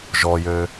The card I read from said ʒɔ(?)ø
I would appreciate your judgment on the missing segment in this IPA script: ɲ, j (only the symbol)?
j